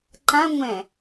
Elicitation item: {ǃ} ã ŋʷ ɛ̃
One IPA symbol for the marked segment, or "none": ǃ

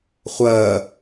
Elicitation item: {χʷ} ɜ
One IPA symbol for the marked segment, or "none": χʷ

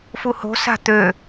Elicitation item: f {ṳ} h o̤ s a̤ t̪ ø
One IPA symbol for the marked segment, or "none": u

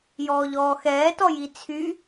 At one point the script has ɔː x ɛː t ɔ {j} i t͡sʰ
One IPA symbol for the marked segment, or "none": j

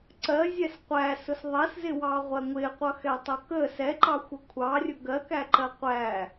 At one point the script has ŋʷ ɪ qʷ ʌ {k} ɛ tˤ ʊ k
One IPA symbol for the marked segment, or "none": x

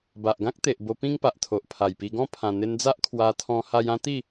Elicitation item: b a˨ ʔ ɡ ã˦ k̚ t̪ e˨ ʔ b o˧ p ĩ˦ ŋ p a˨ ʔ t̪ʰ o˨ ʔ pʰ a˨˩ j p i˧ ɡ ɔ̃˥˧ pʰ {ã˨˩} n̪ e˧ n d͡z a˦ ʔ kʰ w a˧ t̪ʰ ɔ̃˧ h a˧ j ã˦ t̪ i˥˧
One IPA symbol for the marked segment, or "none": ã˨˩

